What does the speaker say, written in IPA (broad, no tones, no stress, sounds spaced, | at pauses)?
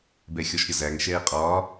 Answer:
b ɛ xʲ ɔ ʃ ɾʲ ʌ z æ ŋ ʃ ɛː qʼ ɒː